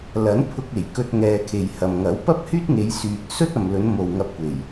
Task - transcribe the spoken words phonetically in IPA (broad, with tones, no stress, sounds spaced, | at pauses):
l ɐ˨˥ n pʰ ʊ˧ k̚ e˨˩ j k ɵ˧ t̚ ŋ ɛː˨ kʰ e˨ j h ɐ˨ m ŋ ɐ˨˥ w p ɐ˥ p̚ h yː˥ t̚ ŋ e˨˧ j s yː˨ t̚ s ɵ˥ t̚ ɐ˨ m l ɵ˨˧ n m o˨ w ŋ ɐ˧ p̚ kʷ e˨˩ j